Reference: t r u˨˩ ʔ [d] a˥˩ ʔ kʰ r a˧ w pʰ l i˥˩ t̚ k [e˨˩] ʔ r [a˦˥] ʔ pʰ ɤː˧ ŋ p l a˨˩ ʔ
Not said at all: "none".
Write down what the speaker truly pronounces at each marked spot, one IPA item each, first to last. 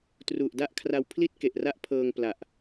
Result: d, e˨˩, a˦˥

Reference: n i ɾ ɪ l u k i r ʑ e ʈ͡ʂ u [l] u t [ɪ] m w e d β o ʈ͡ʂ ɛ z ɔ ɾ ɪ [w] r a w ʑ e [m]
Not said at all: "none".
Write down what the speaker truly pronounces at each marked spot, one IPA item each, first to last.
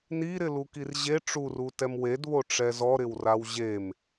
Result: r, ɛ, w, m

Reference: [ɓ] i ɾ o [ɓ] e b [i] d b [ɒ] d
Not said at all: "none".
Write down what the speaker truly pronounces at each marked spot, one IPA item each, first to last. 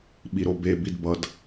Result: ɓ, b, i, ʌ

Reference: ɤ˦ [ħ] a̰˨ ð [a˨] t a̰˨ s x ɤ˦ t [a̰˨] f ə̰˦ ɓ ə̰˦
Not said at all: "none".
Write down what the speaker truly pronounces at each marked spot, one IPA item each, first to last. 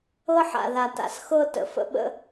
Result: ħ, a˨, ə̰˨

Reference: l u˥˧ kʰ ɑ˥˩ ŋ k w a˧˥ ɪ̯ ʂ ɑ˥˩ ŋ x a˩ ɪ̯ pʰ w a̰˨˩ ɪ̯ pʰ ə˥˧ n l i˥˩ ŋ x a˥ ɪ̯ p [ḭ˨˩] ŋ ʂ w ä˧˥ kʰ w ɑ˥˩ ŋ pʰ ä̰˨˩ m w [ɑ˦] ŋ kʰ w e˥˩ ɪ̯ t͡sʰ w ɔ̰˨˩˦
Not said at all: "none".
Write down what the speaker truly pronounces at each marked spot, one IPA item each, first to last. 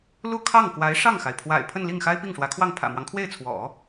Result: i˥˩, ɑ˦

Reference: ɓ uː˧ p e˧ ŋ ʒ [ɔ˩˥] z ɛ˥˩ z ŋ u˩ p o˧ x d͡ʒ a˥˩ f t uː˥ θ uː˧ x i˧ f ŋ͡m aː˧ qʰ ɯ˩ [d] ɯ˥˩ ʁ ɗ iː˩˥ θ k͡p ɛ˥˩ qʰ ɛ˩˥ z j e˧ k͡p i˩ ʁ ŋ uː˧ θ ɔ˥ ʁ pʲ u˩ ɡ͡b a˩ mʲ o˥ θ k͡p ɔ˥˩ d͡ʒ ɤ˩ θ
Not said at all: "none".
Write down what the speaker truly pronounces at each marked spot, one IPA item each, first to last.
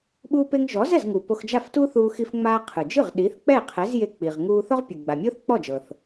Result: ɔ˩˥, d͡ʒ

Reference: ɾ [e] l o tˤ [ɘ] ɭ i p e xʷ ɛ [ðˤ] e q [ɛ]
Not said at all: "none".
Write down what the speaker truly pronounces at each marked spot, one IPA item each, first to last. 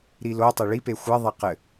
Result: i, e, ðˤ, ɘ

